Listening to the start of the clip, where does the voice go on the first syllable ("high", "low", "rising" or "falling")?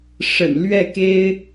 low